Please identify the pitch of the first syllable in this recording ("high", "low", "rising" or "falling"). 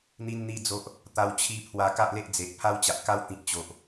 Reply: high